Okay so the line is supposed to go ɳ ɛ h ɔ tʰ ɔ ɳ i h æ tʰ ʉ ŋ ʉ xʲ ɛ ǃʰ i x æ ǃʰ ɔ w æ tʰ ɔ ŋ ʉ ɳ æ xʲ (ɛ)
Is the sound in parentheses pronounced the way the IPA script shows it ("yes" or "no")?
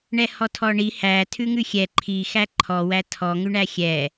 yes